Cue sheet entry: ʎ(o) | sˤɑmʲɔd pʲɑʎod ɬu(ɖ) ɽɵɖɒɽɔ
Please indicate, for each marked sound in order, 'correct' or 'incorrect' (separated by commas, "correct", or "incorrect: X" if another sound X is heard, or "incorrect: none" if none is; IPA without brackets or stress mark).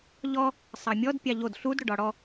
incorrect: ɔ, incorrect: d